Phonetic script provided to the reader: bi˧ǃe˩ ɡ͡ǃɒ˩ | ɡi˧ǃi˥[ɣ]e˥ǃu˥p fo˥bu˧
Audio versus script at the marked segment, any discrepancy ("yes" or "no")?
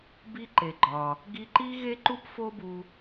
no